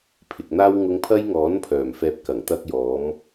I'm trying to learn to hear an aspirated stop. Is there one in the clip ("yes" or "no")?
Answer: yes